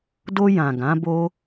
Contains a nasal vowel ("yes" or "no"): yes